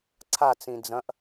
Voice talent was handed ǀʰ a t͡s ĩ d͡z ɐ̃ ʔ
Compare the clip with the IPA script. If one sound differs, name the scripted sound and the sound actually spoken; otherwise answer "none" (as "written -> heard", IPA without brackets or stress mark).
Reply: none